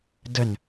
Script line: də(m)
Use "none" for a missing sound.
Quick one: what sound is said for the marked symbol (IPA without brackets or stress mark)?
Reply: n